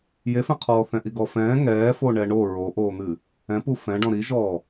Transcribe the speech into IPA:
j e f ɛ̃ qʰ ɔː θ ɛ̃ ʔ i ɡ ɔ f ɛ̃ː ŋ ɛː f o ɳ ɛ ɳ o ɹ o ʔ oː n̪ ɨ | ɛ̃ p u f ɛ̃ ɖ ɔ̃ ɾ i ʒ ɔː

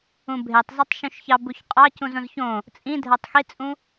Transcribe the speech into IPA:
ũ bʱ e tˤ z ɑ tˤ ʃ ũ ʃ ç ɑ b u ç qʼ ɑ c ũ z õ z ç õ | t͡sʼ ĩ dʱ æ tˤ x i t͡sʼ ũ

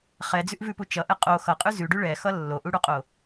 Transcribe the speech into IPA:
χ ɛ d͡z ʉ ʔ v ʉ p u t͡ʃ ʌ ʔ ɛ qʼ o x ʌ qʼ ʉ z ʉ ɖ ʉ ɭ ɛ x ʌ lː o ʔ u ɽ u qʼ o

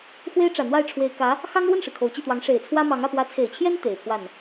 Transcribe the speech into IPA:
x w e˥ ɪ̯ ʈ͡ʂ ä˨˩ n̪ w a˥˩ ɪ̯ ʈ͡ʂʰ w e˨˩ ɪ̯ k ä˧˥ | x ɑ˥ ŋ ɻ w ə˥˩ n ʂ ɻ̩˩ kʰ o˨˩ ʊ̯ t͡ɕ i˥˩ t̪ w ɑ˧˥ ŋ ʂ e˨˩ ɪ̯ t͡sʰ w ä˥ m ɑ˧˥ ŋ ä˥˩ p w ä˧˥ t͡sʰ e˨˩ ɪ̯ t͡ɕʰ j ɛ˥ n t̪ e˨˩ ɪ̯ pʰ w a˥˩ n

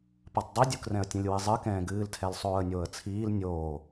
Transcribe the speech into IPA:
p ɐ tˤ dˤ i dʲ u k r ɛ̃ ə̯ tʲ ɐ̃ lʲ w i zˤ ɨ k ɛ̃ː ɡ ɨː l tʰ ɛ l sˤ oː ə̯ nʲ oː ə̯ t͡sʰ iː l nʲ oː

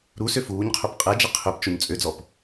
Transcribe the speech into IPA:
ɾ u s ø f uː ɲ qʰ ɵ p qʼ ɛ d͡ʒ ə qʰ ø p t͡ʃ o ɲ t͡sʼ ø d͡z ɔ p

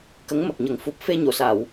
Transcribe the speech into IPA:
k ə˧˥ ŋ m ə˨˩ k̚ ɲ ə˨˩˦ ŋ f u˨˩ p̚ f e˧ ɲ o˨˩˨ s a˨˩˨ w

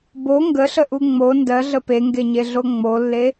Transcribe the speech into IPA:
b o ŋ ɡ ə ɬ ə ʔ u ŋ͡m o n d ɜ ɮ ə p e ŋ ɡ e ɲ e ɮ o ŋ͡m o lː e

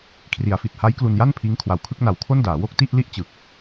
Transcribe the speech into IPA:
kʰ r i˩˦ a̯ f i˨˩ t̚ h a˦˥ j k l u˧ n j a˥˩ n pʰ iː˦˥ ŋ kʰ w a˨˩ w kʰ ɯ˥˩ k̚ n a˨˩ w kʰ o˥˩ n d aː˩˦ w o˥˩ k̚ t i˥˩ ʔ l i˥˩ ʔ t͡ɕ ɯ˨˩ k̚

